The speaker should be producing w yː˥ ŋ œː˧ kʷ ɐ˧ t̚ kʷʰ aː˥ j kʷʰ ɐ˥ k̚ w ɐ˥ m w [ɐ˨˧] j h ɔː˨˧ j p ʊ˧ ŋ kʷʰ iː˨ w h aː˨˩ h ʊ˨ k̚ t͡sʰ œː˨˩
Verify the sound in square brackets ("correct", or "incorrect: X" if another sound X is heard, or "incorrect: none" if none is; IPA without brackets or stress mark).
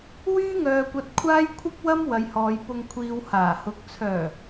correct